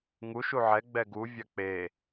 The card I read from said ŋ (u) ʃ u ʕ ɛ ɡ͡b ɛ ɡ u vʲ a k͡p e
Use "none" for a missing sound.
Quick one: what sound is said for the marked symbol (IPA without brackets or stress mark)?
u